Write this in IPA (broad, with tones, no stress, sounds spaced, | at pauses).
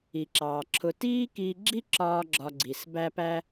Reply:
i˩ ǁ ɑː˩ ǁʰ ʊ˧ t iː˥ k iː˧ ɡ͡ǁ i˥ ǁ ɒː˧ ɡ͡ǁ ɒ˧ ɡ͡ǀ i˩ s b æ˥ p æ˥